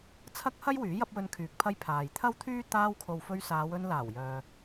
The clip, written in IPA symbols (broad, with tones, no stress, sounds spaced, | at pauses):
t͡sʰ ɐ˥ k̚ h ɐ˥ j w yː˨˥ j ɐ˥ p̚ w ɵ˧ n kʰ yː˨˥ k̚ pʰ ɐ˧ j pʰ aː˨ j t̪ʰ ɐ˥ w t̪ʰ yː˥ t̪ aː˧ w kʰ o˨ w f ɵ˧ ɥ s aː˨˧ w ɵ˧ n l aː˨˩ w j œː˨